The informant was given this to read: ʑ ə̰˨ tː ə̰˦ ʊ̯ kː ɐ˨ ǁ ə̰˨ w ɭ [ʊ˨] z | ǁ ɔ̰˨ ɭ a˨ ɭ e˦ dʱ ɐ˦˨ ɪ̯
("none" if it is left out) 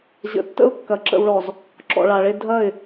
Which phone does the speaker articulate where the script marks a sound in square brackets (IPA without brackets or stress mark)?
ɔ˨